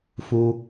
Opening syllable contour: high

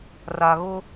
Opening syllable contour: low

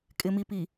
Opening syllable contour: low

